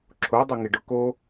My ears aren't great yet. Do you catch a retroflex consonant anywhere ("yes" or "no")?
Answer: yes